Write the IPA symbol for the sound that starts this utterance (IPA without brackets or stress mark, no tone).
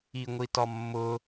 i